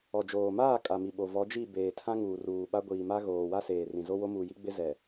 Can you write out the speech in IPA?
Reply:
ɔ˨d͡ʒoː˨maː˦˨ kʼa˨mi˨ɓo˨ vɔ˨˦d͡ʒi˦˨ beː˨ tʰã˦ŋuː˨ ruː˨ɓa˦ ɡʷiː˨ma˦ ɣoː˨wa˦seː˨rĩ˨ zo˦wo˦muː˨ji˦ ɡ͡bɪ˦zɛ˨

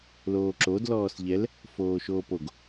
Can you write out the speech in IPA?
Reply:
loːǁod lɔːsʎɛl | foːʃoːpoɡ

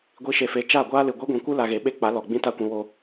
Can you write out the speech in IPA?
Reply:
ɡʷi˧ʃe˨fe˨˦ t͡ʃa˦˨ɡʷaː˦lɨ˨ ɡʷɛ˦ɡʷĩ˨kʷɨ˦ la˧ɣe˨˦ɓe˦k͡pa˨˦ lɔ˨ ɡ͡bĩ˦ta˦kʷĩ˧ wo˧

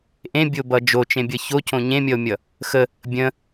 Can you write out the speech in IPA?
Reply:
ʔẽbʲobʌ d͡ʒot͡ʃẽ bʲʌçocõ ɲẽmʲʌo̯mʲʌ | xə | bʲə̃

